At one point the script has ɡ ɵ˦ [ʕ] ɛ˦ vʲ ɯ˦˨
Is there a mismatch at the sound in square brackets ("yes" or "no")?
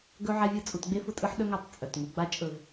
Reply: no